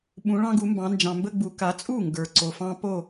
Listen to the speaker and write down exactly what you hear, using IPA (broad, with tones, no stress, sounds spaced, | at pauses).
ɓ ũ˩˧ ɭ ɑ̃˦ ɡ u˩˧ m b ɑ̃˩˧ n d͡ʒ ɑ̃˩ m b ə˦ ɡ͡b u˩˧ k a˩˧ t͡sʼ u˥˩ ŋ ɡ ə˞˩ ǀ o˩ f ɑ̃˦ p o˥˩